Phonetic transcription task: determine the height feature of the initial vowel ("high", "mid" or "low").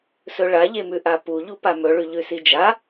mid